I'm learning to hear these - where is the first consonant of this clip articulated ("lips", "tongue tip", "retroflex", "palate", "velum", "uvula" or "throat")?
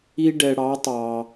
retroflex